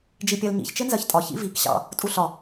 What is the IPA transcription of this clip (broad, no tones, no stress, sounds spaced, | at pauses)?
d͡ʒ i pʲ ɜ l ɲ ḭ ç t͡ʃ ɪ n z ɜ ç tʼ ɒ ç ḭ v i k ɕ ɑ̰ | tʼ u ɬ ɒ